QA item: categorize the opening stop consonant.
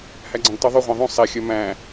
click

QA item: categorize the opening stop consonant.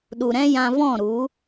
implosive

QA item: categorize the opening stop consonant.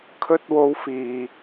aspirated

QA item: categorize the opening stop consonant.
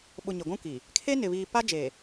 implosive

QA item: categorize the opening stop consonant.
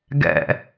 plain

